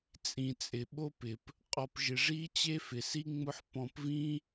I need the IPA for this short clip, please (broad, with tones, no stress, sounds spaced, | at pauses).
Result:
t͡sʼ ĩ˩ t͡sʼ ɪ˩ ɓ o˦ p ɪ˩ p | qʼ ɔ˨ p ʒ ɪ˨ ʐ i˥ t͡ɕ e˥ f ɪ˩ s i˥ ŋ͡m ʊ˥ ħ p ɔ̃˦ p v ĩ˥